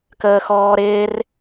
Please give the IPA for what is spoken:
kəːxɔːɾɪːr

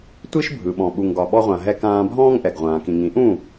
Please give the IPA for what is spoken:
tʷi˦ʃbʱɯ˨ɓɔ̃˨ ɓu˨ŋɡɒ˨ ɓɔ˧ʁʷã˨ɦɛ˧ kãː˧bʱɔ̃ː˦ŋʔɛ˨ɡ ʁʷãː˨kĩ˨ŋĩ˨˦ʔũ˦˨

